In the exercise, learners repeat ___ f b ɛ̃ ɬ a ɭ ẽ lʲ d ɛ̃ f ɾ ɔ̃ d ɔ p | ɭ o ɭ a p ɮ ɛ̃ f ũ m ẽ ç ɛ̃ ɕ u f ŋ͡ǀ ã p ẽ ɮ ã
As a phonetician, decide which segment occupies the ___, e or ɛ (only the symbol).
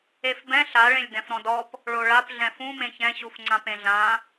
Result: e